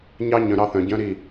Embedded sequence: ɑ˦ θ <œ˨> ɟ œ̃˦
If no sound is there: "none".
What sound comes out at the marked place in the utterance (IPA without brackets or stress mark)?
œ̃˨